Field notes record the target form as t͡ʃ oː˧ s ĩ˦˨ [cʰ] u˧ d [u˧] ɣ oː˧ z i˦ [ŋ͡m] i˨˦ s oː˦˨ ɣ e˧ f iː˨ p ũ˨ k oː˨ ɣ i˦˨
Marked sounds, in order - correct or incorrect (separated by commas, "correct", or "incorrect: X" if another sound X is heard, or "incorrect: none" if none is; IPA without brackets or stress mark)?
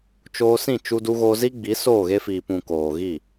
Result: incorrect: t͡ʃ, correct, incorrect: ɡ͡b